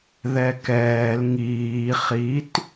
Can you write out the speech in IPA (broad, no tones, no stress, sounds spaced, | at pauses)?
ð ɛ k ɛː l ŋ iː χ i t